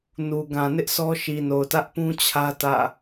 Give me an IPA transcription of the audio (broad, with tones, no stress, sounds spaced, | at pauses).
n u˨ ɡ ã˨ n ɪ˦ ʔ sʰ ɔ˦ ʃ i˨ n o˨ ʊ̯ t ä˦ ʔ p ũ˦ t͡ɕʰ ä˦ t ä̰˦˨